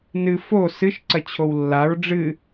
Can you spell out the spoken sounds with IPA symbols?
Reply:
nɨ fo sɨʃ ǀɐt͡ɕʰowlːaɹ ɖ͡ʐɨ

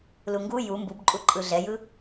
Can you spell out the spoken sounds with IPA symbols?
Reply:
luŋɡu ju mbubǃʼu ǃʼɯɮɛjɯ

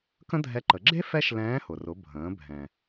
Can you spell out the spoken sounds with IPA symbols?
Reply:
kə̃˥dʱɛ˧˥ǃə˩˧ ɡ͡ǁe˥ fɛ˥ʃ lɛ̃ː˧˥hʊ˩rʊ˩˧ bʱə̃ː˩˧ bʱɛ̃˩

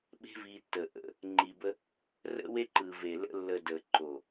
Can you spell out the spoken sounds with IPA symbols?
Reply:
ɓe̤˦vi˧tːə˨ ʔə̰˧ | ŋ͡ǃi˨bə˧ | rə̰˦we˦ǃɯ˨ ve˨ lə̰˧lːə˨ də˨ǃo˨

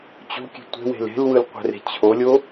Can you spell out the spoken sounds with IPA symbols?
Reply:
t͡ɕo̤kʲe̤ tʷe̤we̤l e̤lwɯlqʷɛ̤re̤ t͡ɕʰolʲo

